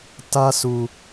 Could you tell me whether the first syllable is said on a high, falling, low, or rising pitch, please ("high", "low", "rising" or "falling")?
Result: high